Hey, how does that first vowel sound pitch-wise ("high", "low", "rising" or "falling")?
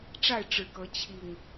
falling